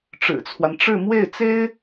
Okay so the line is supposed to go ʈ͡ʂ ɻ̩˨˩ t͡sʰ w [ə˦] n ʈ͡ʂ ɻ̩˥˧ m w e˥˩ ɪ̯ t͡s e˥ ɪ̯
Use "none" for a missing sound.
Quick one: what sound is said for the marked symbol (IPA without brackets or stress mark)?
a˦